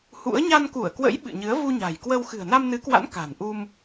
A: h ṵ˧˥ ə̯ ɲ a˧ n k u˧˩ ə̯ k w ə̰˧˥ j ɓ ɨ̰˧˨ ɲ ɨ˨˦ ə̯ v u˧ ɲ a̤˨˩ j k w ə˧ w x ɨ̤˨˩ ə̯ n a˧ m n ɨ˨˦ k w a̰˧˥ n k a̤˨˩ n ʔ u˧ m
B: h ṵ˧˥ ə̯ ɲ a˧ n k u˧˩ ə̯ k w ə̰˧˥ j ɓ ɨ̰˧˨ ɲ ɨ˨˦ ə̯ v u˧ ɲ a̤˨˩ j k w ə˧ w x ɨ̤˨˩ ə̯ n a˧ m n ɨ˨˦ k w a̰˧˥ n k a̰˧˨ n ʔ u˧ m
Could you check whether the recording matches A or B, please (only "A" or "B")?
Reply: A